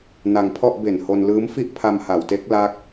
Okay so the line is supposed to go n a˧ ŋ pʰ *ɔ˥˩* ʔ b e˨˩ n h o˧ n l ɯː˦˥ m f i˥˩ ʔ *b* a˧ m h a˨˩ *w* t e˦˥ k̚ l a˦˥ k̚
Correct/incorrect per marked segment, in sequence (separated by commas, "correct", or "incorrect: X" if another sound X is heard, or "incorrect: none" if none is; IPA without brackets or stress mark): correct, incorrect: pʰ, correct